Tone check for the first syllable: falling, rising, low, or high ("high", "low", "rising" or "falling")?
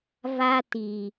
high